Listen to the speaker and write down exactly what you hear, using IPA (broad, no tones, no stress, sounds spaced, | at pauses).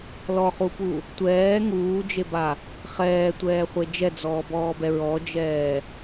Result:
l ɔ χ u p u | tʷ ɛː ŋ uː d͡ʒ e b a | χ ɛː tʷ ɛː χʷ e d͡ʒ ɛ d͡z ɔː b ɔː b ɛ ɹ ɔ d͡ʒ ɛː